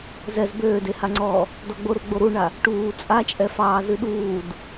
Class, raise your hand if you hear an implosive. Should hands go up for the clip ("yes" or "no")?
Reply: yes